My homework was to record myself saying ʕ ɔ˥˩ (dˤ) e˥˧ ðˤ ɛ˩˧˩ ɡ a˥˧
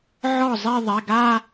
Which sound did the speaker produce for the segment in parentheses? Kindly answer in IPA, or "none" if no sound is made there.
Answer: zˤ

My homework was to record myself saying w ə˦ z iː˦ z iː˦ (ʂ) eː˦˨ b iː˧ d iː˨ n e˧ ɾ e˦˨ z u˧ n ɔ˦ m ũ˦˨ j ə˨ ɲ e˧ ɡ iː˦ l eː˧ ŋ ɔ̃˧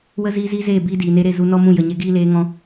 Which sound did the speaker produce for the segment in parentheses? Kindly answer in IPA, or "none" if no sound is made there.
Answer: z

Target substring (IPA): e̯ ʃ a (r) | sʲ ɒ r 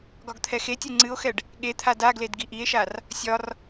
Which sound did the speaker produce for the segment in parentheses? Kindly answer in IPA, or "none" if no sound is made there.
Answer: r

